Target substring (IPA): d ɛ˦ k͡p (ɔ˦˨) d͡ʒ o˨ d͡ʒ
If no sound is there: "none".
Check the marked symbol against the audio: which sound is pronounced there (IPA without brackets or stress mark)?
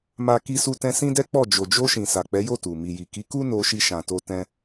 ɔ˦˨